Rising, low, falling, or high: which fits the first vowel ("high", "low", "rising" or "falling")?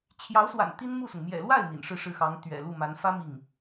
rising